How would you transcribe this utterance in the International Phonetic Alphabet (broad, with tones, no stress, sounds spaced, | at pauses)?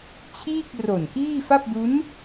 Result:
t͡ɕʰ iː˥˩ k̚ r o˨˩ n k iː˥˩ f a˥˩ p̚ d u˦˥ n